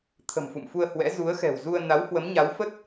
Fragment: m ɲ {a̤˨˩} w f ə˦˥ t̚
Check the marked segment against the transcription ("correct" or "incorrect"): incorrect